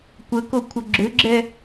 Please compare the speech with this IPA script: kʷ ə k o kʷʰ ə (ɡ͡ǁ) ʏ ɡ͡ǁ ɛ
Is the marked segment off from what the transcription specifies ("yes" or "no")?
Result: no